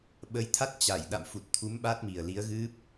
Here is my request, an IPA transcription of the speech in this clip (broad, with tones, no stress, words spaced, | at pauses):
ɓə˨˦jt̪ʰa˦˥t̚ t͡ɕa˧˩j ɗa̰˧˨mfu˨˩t̚t̪ʰu˨˦m ɓa˦˥t̚mi˨˩ə̯li˨˦ə̯ɣɨ˦˥p̚